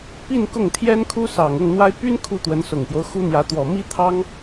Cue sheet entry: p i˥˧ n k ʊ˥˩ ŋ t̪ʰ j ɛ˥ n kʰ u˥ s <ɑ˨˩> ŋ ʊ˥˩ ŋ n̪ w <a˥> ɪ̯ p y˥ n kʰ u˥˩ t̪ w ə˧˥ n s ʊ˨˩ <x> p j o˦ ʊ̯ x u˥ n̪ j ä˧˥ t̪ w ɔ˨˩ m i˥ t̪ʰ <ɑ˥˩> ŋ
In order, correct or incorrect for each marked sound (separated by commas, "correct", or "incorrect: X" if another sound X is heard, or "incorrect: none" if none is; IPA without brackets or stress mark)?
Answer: correct, correct, incorrect: ŋ, incorrect: ɑ˥